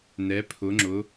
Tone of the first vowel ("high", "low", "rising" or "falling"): rising